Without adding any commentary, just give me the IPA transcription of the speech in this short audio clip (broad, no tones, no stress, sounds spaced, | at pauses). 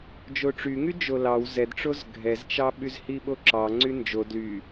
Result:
d͡ʒ o ʈ͡ʂ y ŋ y d͡ʒ o l ɑ w z ɛ d ʈ͡ʂ o z ɡʱ ɛ z t͡ʃ ɑ ɓ y z h i ɓ o ǁ ɑ ŋ͡ǀ y n d͡ʒ o d l y